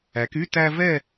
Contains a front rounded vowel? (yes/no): yes